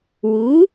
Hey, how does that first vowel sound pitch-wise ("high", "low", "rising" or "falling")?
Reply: rising